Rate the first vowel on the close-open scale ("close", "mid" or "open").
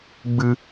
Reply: close